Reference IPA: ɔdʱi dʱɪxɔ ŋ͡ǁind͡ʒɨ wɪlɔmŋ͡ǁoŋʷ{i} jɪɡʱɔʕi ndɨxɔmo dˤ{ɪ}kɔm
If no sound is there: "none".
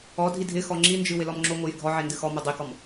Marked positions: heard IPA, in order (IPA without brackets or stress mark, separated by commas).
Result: ɨ, i